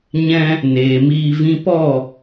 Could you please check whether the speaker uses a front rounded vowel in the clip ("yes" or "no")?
no